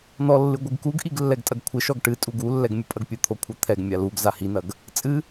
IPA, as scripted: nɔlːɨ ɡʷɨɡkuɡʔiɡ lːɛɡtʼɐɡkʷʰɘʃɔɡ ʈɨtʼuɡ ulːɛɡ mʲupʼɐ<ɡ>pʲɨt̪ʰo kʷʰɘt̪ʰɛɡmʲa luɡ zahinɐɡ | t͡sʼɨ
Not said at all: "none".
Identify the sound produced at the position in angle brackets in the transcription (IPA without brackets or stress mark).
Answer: ɡ